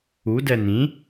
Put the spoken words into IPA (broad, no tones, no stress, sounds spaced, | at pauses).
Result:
u d ɛ n ĩ